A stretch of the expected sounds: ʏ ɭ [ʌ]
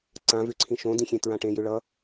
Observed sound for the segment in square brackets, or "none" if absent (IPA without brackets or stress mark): ʌ